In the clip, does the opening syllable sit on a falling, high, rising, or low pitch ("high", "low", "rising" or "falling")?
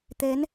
rising